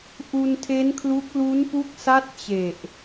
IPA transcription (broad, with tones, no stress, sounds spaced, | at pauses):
ʔ u˧ n tʰ e˦˥ n kʰ l u˦˥ k̚ l u˦˥ n p u˦˥ k̚ s a˥˩ t̚ t͡ɕ e˨˩ ʔ